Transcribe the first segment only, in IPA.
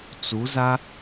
t͡s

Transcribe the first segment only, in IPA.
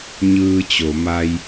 ɲ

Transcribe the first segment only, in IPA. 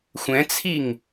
xʷ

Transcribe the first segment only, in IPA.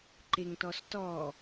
ǃ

